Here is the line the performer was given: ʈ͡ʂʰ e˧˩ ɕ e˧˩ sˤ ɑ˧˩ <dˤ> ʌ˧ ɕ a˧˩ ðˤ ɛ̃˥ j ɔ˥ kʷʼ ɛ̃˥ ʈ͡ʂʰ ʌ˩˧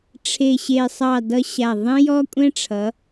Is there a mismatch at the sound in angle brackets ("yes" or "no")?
yes